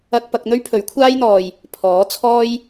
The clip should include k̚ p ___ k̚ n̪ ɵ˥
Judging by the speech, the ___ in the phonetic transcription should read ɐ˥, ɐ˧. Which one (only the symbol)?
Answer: ɐ˧